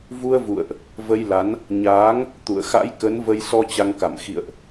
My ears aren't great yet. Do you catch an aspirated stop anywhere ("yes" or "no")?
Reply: no